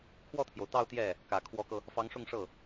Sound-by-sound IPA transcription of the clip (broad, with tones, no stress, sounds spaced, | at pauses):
kʰ w ɔ˥˩ t̪ʰ j o˩ ʊ̯ t̪ ɑ˥˧ ʊ̯ t̪ j ɛ˥˩ | k ä˨˩ kʰ w ɔ˧˥ k ɤ˧ | f ɑ˧˥ ŋ ʂ ʊ˥˧ ŋ ʂ ɤ˥˩